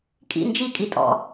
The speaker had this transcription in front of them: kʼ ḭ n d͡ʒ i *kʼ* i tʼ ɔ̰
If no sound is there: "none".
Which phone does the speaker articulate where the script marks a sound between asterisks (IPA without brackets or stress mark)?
kʼ